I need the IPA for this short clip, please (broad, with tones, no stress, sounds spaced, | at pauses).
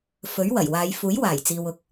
f ɵ˨˥ ɥ w ɐ˨˩ j w aː˨˧ j f uː˨˥ j w aː˨˩ j t͡s iː˨ w ʊ˨ k̚